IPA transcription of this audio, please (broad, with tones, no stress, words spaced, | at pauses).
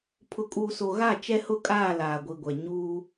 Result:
pʰʊ˨kʼuː˨so˨ ɣa˦˨ t͡ʃɛ˦hʊ˦˨kʼaː˦˨ laː˨ɡʷi˨ɡʷɛ˨ ɲuː˦